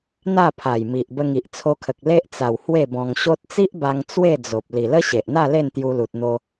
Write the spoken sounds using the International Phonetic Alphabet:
n̪ a˥˧ pʰ a˨˩ j m i˨ ʔ b ə˧ ŋ i˨ ʔ t͡sʰ o˧ kʰ ə˨ k̚ l e˦ ʔ t͡s a˨˩ w h w e˥˧ b ɔ̃˧ ŋ ɕ o˦ t̚ t͡s i˦ ʔ b a˧ ŋ t͡s w e˥˧ d͡z o˨ p̚ l i˨˩ l ə˦ ɕ e˨ ʔ n̪ a˥˧ l e˥˧ n t̪ j u˧ l u˨ t̚ n̪ o˧

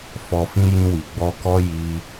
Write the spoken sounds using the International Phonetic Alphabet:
f ɔ˨ f ĩ˧ j ĩ˧ w i˨ ɡ͡b ɔ˧ k ɔ˦ j i˧

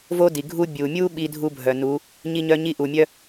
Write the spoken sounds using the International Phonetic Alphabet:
v o˦ d i˨ ɡʱ u˦ bʲ u˨ mʲ u˦ ɓ i˦ dʱ u˦ bʱ œ˨ n u˨˦ | ɲ i˦ ɲ œ˦ ɲ i˦ ʔ u˨ mʲ œ˦

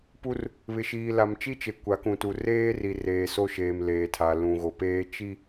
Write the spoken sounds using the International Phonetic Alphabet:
p u˦ r | β ɪ˨ ʃ iː˨ l a˨ m t͡ʃ i˦ t͡ʃ e˨ kʷ a˨˦ k ũ˨ t u˨ r eː˦ r i˨ r eː˨ s o˦ ʃ eː˨ m l eː˨ tʰ a˨ l ũ˨ ɣ o˨ p eː˦ t͡ʃ i˦

